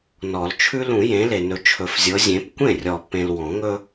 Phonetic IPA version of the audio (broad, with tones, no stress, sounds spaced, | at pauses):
n ɔ˨˩˦ l t͡ʃʰ ʉ˦ l ũ˨˩˦ j ẽ˨˦ l e˨ n ɵ˨˦ t͡ʃʰ ɵ˨˩˦ f zʲ ɤ˨˦ zʲ ẽ˨˦ p kʷ ẽ˥˩ rʲ ɔ˨ p ẽ˨ l w ɔ̃˨˩˦ ŋ ɵ˦